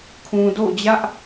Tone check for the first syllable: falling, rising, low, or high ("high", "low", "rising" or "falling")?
low